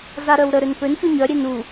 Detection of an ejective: absent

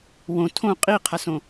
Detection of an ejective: present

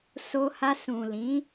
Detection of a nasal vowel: present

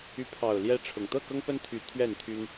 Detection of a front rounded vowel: present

